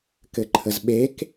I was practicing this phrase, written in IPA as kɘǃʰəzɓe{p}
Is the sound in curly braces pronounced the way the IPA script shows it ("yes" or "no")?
no